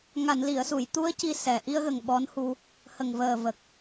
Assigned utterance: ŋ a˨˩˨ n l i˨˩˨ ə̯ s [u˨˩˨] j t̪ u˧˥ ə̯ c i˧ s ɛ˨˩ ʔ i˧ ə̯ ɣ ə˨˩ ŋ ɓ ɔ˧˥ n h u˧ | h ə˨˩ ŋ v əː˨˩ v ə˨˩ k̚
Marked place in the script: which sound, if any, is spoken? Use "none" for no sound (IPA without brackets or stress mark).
u˨˩˨